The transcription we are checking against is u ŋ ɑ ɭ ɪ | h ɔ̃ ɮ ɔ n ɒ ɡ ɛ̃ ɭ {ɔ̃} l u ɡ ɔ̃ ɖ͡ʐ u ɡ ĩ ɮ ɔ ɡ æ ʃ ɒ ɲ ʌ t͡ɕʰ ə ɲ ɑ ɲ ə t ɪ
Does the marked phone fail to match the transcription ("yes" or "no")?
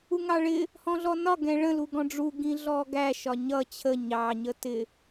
yes